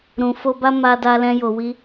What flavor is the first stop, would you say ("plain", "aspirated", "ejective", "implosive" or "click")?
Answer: plain